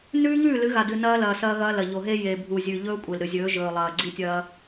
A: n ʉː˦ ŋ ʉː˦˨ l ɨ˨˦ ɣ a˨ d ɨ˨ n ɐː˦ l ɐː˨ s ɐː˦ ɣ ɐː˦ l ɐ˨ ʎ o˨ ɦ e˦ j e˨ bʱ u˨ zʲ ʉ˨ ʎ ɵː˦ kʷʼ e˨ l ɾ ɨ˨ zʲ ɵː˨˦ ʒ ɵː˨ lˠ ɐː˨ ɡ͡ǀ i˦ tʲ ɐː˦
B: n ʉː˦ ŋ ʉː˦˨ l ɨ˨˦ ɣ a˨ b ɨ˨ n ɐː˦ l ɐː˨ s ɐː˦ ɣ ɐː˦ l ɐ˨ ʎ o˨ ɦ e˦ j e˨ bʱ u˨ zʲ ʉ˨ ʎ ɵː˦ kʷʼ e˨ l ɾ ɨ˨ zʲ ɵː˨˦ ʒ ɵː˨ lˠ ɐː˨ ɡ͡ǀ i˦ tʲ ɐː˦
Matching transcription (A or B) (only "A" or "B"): A